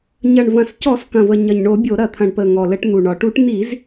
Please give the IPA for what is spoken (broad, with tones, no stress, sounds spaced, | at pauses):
ɲ ɐ˨˩ ɳ v ɐ̃˨˩ s c ɔ˧˩˧ s k ɐ̃˨˩ v ə˨˩ ɲ ɐ˨˩ ɲ ɳ o˧˩˧ bʲ o˧˩˧ ɾ ɐ˧˩˧ t̪ʰ ɐ̃˨˩ ɳ p ə˨˩ ŋ ɔ˨˩ l ə˧˩˧ ʈ n̪ u˨˩ ɳ ɒ˨˩ ʈ u˧˩˧ ʈ n̪ i˧˩˧ z